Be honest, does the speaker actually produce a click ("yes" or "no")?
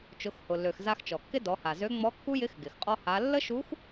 no